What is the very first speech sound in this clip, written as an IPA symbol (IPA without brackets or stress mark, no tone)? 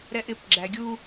ɾ